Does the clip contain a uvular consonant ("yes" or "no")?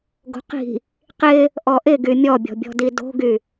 yes